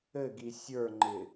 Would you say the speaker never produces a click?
no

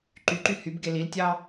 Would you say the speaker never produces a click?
no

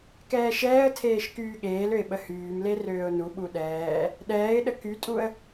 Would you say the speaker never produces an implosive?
no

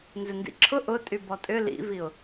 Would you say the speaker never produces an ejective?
no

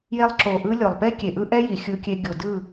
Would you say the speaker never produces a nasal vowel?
yes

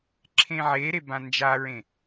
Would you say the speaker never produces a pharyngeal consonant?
no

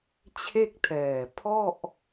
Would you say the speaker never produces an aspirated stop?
no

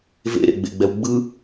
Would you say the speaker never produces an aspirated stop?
yes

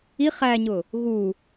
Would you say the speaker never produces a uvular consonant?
no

